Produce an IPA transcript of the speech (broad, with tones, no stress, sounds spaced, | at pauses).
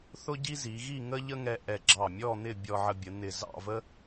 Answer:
θ ʊ˥ ɟ i˥ z i˩˧ ɣ i˥˧ ŋ ə˥ ʎ ə˥ ŋ ɛ˧ ʔ ɛ˧˩ ɡ͡ǁ ɑ˧˩ mʲ ɔ˥˧ n̪ ɪ˥˧ bʲ ɔ˧ ʕ ə˧ bʲ ə˩˧ n̪ ɪ˧˩ z ɑ̰˥˧ v ə˥